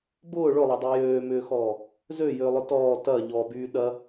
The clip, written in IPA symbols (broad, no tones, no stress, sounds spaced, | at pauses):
b ʊː ɭ ʊ lˠ ɐ dˤ y j øː m ʏː x ɔː | z ø j ʏː lˠ ʊ t ɔː t ɐ ʎ ɔ b yː ɗ ɐ